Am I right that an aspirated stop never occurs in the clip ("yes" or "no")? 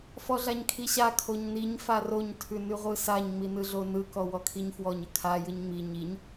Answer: no